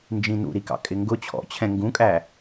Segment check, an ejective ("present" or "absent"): present